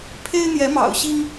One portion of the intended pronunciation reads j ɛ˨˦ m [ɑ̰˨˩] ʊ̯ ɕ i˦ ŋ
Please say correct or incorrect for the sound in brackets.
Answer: correct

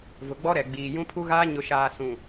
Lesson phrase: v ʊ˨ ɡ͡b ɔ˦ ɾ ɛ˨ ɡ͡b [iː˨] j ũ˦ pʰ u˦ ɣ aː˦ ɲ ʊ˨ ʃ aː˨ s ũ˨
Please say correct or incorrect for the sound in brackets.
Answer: correct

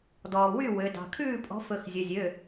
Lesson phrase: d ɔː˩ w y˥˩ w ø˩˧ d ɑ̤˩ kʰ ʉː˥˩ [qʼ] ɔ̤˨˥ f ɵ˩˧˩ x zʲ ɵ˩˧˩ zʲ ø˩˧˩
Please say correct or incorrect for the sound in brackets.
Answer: incorrect: pʼ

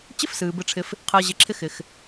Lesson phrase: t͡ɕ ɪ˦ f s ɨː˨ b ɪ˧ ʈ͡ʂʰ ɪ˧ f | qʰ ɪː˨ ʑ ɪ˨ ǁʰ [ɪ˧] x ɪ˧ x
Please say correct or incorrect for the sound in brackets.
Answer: correct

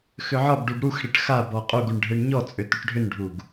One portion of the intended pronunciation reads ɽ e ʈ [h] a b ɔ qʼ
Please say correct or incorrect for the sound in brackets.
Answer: incorrect: x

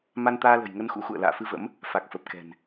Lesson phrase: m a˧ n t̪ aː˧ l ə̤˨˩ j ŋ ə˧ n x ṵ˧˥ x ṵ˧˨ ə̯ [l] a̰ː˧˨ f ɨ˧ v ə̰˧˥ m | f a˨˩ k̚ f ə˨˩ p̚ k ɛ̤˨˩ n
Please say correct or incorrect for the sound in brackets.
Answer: correct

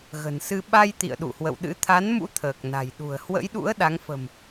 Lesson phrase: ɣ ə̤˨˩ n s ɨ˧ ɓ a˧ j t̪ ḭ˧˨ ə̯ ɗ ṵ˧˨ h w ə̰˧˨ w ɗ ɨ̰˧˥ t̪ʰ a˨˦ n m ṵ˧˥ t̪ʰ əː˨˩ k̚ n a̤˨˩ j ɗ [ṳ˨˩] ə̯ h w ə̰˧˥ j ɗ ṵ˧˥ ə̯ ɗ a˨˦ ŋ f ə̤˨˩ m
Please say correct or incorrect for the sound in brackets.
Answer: correct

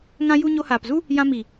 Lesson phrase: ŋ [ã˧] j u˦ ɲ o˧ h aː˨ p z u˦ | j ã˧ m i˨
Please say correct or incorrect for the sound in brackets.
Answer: incorrect: ã˦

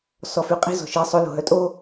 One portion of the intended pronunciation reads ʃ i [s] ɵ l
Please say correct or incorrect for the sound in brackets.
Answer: incorrect: sˤ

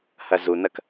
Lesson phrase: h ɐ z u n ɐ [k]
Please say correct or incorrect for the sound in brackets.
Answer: correct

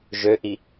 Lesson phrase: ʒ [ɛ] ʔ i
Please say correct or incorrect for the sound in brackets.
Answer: incorrect: ø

